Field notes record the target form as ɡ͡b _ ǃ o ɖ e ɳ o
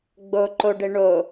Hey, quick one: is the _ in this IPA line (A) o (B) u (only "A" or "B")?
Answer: A